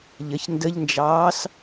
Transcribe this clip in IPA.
ʎ ə ç n d ə ʎ n d͡ʒ ɑː s

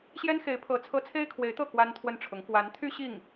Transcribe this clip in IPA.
ɕ j ɛ˥ n x e˧˥ ɪ̯ pʰ ɤ˧˥ t͡sʰ ɤ˥ t͡sʰ e˥ ɪ̯ kʰ w e˧˥ ɪ̯ t̪ ɤ˥˩ k w a˥ n t̪ʰ w ə˥˩ n ʈ͡ʂʰ ʊ˧˥ ŋ k w a˧˥ n t̪ʰ y˥ ɕ i˥˩ ŋ

